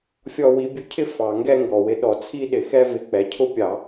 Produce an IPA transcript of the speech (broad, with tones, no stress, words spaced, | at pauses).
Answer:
fʲɔ˥˧wi˧˥ bʲʊ˧˥cʰɪ˥˧ fɑ˧˩˧ ŋɡɛ˥˧ŋɡɔ˨˩wɪ˧˥ ɗɔ˨˩t͡sʰi˥˧ɗɪ˧˩˧xɛ˥˧ vɪ˧˩˧k͡pɛ˨˩cʰʊ˥˧pʲɑ˧˩˧